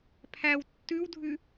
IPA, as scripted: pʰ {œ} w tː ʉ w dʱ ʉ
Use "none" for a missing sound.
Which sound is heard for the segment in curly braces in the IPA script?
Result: æ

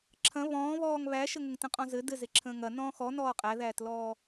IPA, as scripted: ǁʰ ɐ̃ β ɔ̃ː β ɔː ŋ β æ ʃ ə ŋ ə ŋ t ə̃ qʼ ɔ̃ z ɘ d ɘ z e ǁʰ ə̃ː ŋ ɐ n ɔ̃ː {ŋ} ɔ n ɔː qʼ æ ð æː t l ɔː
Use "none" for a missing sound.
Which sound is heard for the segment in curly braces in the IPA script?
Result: x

